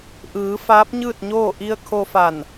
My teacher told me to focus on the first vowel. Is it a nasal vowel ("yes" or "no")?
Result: no